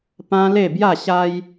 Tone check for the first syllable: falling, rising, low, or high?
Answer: high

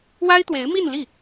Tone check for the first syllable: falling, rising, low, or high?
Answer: high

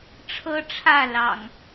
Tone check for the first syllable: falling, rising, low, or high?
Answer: high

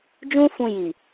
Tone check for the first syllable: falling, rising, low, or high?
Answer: high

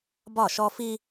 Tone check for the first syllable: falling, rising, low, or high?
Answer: falling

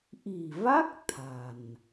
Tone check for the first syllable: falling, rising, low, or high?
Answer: low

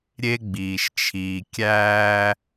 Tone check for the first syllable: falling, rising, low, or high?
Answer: high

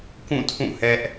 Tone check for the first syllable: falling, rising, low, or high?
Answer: falling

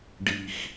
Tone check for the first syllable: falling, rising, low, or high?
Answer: low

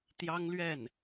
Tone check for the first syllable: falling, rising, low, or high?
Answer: high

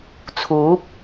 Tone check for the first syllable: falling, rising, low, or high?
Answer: rising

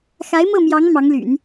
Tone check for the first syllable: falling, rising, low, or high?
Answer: rising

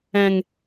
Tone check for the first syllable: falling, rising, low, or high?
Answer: low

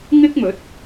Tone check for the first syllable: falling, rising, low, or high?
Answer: high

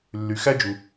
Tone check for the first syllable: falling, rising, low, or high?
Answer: low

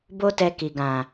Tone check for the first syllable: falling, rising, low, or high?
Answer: high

